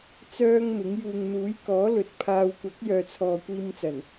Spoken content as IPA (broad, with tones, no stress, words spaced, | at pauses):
t͡sœː˥ŋmɪ˨˥ŋ juː˨ŋn̪uː˨˥jkɔː˨˥lɵ˨t̚ pʰaː˧w kʷɐ˨˥k̚jœː˨t͡sʰɔː˨ kʷiː˧mt͡sɐ˨˩n